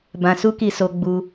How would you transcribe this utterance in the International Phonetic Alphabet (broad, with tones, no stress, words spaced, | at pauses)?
bã˧su˦ki˧so˧ ɡ͡bu˧